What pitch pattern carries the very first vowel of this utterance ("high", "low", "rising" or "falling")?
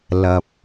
low